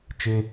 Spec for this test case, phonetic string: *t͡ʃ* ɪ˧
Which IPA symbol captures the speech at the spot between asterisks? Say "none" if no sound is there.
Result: t͡ʃ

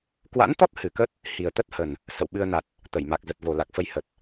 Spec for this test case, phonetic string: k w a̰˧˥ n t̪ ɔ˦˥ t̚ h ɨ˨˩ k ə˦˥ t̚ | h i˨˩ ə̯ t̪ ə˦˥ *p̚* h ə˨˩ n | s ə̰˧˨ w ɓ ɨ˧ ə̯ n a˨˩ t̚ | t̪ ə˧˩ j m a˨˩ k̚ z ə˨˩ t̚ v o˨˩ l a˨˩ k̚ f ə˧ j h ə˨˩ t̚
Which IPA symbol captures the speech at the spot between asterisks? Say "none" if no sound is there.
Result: t̚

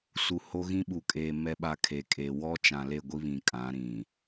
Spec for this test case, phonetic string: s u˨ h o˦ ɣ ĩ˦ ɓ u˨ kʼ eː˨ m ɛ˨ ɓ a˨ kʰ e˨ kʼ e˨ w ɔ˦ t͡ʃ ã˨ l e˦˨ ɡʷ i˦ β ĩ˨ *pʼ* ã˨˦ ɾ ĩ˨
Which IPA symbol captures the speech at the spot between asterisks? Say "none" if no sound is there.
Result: kʼ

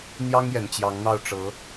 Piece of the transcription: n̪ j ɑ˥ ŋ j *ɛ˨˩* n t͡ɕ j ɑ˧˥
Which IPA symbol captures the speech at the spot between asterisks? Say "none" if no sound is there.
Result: ɛ˨˩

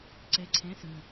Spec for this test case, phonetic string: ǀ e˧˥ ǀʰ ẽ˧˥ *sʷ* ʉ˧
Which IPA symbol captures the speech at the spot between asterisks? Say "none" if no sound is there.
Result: s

